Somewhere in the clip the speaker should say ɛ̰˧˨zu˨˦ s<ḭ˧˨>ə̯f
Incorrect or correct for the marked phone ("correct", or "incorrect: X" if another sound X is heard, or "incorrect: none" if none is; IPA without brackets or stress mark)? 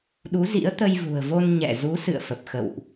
incorrect: ɨ̰˧˨